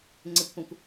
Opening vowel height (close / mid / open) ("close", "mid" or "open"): mid